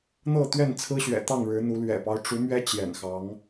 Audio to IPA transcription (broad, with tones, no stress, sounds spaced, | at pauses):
n̪ ɤ˥˨ t̪ ɥ ɛ˥˨ n t͡sʰ ɹ̩˦ ɕ ɥ ɛ̰˨˩ t̪ ɑ˥˨ ŋ ɻ ɻ̩˨˦ n̪ u˨˦ l ɥ ɛ̰˨˩ p ɑ˦ ʊ̯ ʈ͡ʂ u˨˦ m ɥ ɛ˦ t͡ɕ j ɛ̰˨˩ n x ɑ˨˦ ŋ